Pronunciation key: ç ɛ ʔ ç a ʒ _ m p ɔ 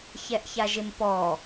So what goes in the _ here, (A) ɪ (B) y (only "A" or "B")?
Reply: A